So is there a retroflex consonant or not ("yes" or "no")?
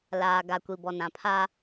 no